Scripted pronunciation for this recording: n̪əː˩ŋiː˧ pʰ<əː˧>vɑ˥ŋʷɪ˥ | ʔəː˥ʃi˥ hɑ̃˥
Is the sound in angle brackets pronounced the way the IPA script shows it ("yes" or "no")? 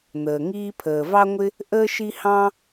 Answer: no